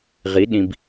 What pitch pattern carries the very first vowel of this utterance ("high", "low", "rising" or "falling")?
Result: rising